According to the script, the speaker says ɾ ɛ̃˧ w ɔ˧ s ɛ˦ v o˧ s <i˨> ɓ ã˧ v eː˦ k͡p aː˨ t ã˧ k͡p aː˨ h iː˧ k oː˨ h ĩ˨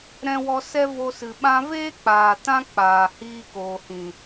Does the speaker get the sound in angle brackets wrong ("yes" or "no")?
yes